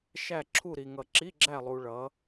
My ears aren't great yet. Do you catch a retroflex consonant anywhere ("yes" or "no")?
yes